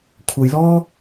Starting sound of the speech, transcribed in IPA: kʷʰ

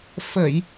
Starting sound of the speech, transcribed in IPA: f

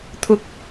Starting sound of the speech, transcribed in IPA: t̪ʰ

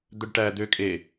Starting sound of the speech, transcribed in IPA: d̪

